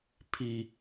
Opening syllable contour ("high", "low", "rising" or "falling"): high